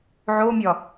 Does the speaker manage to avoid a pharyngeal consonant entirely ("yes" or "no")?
no